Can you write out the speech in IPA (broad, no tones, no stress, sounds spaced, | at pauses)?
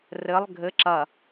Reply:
r ɘ lˠ ɡʱ ɘ ǁ ɐ